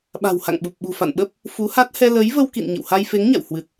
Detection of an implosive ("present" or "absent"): present